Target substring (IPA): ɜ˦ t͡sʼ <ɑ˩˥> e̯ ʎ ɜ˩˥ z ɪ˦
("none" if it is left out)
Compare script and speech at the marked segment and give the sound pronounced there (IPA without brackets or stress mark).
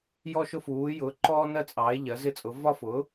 ɑ˩˥